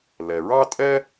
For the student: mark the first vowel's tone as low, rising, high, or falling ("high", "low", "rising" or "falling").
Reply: low